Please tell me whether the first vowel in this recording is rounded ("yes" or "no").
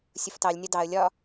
yes